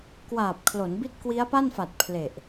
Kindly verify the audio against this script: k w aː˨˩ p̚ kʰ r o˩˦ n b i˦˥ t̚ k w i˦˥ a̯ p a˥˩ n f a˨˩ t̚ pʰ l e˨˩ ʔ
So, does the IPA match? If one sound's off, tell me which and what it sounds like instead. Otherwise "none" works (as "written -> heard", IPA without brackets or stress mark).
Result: r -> l